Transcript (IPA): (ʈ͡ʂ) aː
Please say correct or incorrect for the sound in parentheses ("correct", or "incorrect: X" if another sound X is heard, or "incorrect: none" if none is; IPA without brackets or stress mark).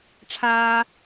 incorrect: ʈ͡ʂʰ